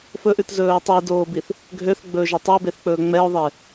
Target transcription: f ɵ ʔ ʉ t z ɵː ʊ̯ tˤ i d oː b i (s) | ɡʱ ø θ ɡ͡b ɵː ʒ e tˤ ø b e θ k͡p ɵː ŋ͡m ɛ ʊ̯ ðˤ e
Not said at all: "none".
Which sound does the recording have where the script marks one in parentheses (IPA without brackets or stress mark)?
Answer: θ